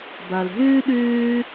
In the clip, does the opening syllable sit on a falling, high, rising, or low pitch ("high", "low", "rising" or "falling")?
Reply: low